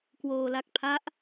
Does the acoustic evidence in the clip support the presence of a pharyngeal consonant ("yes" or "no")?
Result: no